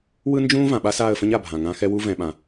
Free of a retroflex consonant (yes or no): yes